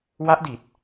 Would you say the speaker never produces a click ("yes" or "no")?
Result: yes